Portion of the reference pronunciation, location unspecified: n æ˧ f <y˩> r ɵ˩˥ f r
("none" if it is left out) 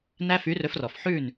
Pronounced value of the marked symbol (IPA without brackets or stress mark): y˩˥